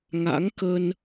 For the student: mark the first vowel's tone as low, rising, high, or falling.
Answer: rising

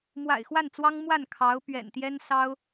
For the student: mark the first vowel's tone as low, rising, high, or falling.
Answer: low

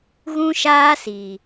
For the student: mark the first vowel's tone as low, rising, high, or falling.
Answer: high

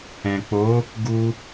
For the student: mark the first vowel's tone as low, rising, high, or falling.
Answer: low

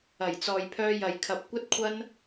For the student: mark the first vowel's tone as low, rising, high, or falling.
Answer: low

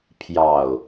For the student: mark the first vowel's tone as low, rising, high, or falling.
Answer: low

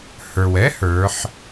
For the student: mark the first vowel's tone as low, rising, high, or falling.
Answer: low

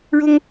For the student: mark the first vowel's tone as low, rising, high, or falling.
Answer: high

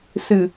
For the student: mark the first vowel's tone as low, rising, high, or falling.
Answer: low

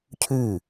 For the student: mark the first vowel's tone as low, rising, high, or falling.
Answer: falling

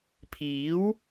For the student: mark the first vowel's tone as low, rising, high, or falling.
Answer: rising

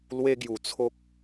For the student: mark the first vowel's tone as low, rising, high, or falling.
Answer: high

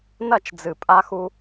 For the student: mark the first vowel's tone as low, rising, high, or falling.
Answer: falling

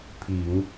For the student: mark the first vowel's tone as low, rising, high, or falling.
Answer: low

